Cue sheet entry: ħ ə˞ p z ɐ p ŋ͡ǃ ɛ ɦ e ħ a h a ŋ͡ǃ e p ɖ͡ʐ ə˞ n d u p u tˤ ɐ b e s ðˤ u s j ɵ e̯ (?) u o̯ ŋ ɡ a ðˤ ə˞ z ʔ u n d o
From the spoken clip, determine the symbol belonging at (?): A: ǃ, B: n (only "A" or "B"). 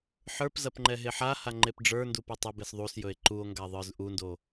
A